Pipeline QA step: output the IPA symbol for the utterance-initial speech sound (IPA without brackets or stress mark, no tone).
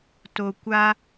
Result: t